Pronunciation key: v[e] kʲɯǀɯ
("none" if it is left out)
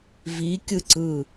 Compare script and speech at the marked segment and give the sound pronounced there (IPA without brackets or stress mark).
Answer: i